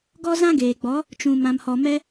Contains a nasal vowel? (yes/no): yes